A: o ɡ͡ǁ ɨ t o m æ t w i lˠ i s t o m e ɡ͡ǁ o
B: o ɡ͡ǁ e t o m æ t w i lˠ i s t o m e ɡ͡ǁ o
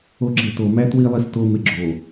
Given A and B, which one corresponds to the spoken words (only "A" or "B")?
B